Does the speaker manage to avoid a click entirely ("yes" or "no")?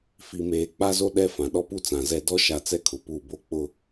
yes